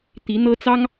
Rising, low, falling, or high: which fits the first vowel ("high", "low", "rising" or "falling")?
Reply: rising